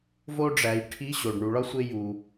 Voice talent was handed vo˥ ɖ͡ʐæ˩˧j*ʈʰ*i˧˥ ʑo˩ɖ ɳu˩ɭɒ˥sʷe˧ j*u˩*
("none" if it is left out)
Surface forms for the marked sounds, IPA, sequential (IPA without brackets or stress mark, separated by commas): ʈʰ, u˩